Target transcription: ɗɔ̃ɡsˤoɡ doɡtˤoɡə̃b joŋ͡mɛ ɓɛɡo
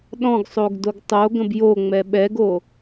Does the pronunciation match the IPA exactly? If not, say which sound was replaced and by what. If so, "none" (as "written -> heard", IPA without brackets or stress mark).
none